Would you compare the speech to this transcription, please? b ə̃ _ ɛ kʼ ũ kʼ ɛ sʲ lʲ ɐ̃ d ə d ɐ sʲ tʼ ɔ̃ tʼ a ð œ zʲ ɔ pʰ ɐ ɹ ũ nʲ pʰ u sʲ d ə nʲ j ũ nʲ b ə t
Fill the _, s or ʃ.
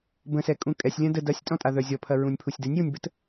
s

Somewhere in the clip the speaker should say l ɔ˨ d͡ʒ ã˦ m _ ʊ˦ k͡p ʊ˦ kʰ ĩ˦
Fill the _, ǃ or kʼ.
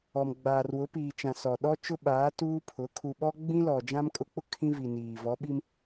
kʼ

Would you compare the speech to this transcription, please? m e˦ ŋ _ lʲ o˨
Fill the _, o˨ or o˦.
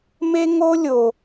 o˦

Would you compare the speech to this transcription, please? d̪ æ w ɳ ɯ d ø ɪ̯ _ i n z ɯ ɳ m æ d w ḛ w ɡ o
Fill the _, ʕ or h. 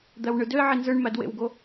ʕ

